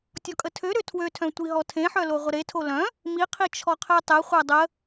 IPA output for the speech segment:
tʲɔkʼətʰøɾø tʰwøtʰœ̃ tʷiɦɔtʰẽħœ loʁʷəɾetʰo lœ̃ | miqʰi t͡ʃʰɔqʰetˤɛχʷɛ dˤə

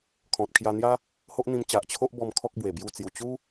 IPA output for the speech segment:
kʰɔ̃˨t̚kʰja˧n̪ja˦ | ho˦ʔn̪ĩ˧mt͡ɕa˨ʔ t͡ɕʰo˦ʔbɔ˧m kʰɔ˦k̚bwe˨˩bju˥˧t͡sju˧ t͡ɕu˦

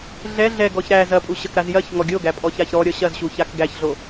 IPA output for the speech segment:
ɮɛ ɮɛɡɔç ɾæ zɐpʼu ɕəkɾaz jɐç ŋɔɡʲoɡæ pʼɔçaçɾɔɾʲɔ ɕɐzɕu çakɡæçɮo

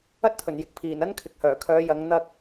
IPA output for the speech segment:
ɐ˥t̚t̪ʰɵ˨˩n jɪ˨k̚pʰiː˨˩nɐ˥n kʰɪ˨k̚hœː˨˩ kʰœː˨˧jɐ˨˧ŋ n̪ɐ˧k̚

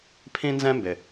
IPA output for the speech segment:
pʰĩ˦nzɛ̃˦ mbɪ˨

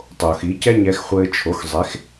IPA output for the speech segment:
tˤo˩xi˩˥ cɛ˥ɲɛ˧xχʷɘː˧ t͡ʃʰo˩˥xzˤe˩˥x

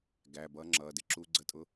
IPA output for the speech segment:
ɡæ˩˧˩bʌ˨˥ ŋ͡ǁʌː˩˧˩dɪ˧ ǁu˧ ɡ͡ǀə˧tʼʊ˨˥

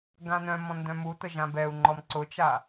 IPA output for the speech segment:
ɡãnœ̃mɔ̃ ndœ̃mutə ʒãbɛu̯ŋ͡ǃɔm ǀʊt͡ʃa

